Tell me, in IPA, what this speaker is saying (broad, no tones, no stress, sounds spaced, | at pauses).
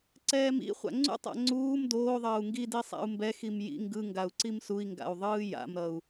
ǀ ɛː m ḭ χʷ a̰ ŋ͡ǀ ṵ tˤ a̰ ŋ͡ǀ uː m d oː ðˤ ʌː u̯ ŋ ɡ i d i sˤ a̰ u̯ m b ɛ x i m j ḭ ŋ ɡ ɯ ŋ ɡ a u̯ ǀ i m s u i̯ ŋ ɡ a̰ u̯ ðˤ ɯː j a̰ m ɾ ʌ u̯